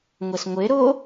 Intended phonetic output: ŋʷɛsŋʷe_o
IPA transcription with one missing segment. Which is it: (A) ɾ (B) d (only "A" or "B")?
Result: A